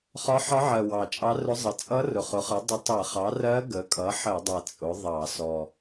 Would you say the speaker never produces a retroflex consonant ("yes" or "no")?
yes